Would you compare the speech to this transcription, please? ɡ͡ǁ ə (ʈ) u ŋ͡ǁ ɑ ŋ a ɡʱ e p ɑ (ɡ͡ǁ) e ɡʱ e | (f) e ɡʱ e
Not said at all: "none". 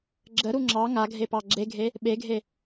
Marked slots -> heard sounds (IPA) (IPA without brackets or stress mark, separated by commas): ɾ, ɡ͡ǁ, ɓ